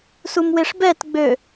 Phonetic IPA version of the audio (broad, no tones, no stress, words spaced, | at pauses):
sumweʂbɛt ɡ͡bø